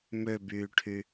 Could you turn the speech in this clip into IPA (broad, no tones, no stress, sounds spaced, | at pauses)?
m ø b yː ʈʰ y